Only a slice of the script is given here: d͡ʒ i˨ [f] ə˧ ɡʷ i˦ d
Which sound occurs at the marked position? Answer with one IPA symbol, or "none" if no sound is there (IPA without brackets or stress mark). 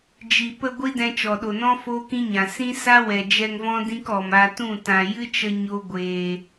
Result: p